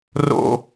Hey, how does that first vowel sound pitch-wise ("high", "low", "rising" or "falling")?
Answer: high